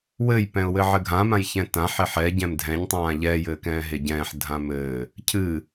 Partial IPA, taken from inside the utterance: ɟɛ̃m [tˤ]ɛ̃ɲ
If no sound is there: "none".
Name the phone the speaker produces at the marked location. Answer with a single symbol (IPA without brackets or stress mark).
dʱ